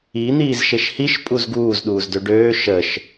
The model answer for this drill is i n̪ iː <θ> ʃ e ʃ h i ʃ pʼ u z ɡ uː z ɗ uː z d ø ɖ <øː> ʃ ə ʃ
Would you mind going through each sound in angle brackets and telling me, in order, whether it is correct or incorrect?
incorrect, correct

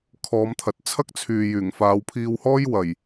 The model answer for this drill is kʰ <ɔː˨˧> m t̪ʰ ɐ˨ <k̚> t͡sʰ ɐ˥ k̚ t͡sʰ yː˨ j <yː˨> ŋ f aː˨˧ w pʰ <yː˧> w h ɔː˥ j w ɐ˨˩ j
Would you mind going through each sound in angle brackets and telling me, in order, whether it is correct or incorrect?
correct, incorrect, incorrect, incorrect

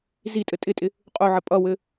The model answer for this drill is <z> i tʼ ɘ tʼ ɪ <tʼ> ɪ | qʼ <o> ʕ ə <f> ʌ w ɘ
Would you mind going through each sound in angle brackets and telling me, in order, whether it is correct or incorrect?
correct, correct, correct, incorrect

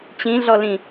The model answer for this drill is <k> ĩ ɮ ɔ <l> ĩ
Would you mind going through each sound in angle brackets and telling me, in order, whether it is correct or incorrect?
incorrect, correct

